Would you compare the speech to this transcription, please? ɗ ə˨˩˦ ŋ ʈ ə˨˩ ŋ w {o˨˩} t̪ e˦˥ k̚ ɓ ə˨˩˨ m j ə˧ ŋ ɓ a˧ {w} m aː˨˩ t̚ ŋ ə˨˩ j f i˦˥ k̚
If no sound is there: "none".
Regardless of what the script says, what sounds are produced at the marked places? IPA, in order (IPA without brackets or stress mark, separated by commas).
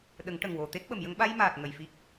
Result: o˨˩, j